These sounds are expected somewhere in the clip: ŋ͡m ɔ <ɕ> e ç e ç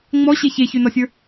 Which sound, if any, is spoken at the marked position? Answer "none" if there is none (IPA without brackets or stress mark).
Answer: ɕ